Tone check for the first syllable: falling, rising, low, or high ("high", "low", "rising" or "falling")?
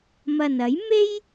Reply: low